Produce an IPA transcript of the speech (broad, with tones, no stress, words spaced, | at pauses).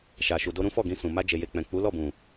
ʃa˨ ʃu˨do˧ ɾũ˦ fɔ˦˨ɡĩ˧sũ˨ ma˧d͡ʒe˨je˨ k͡pɛ̃˨ k͡pu˨˦lɔ˦˨bũ˨